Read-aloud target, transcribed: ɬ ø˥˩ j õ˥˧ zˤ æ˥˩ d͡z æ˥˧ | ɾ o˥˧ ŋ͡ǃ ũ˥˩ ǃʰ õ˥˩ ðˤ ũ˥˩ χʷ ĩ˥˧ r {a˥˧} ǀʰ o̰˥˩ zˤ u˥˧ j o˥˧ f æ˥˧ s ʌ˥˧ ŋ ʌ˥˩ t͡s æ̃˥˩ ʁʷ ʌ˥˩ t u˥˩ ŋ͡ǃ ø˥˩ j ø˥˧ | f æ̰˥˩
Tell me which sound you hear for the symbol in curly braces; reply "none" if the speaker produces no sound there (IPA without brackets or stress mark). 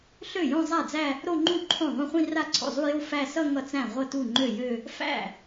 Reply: a˥˧